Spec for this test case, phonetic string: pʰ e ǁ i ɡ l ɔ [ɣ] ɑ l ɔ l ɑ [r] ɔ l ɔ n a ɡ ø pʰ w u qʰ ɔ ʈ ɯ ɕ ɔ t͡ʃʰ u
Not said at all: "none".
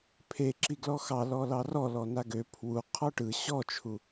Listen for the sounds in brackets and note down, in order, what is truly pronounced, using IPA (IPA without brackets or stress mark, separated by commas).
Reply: x, r